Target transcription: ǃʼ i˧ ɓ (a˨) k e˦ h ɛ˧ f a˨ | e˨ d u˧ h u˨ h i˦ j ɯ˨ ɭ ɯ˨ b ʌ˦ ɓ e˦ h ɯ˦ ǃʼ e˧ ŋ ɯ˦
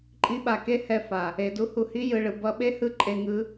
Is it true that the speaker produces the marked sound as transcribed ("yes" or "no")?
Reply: yes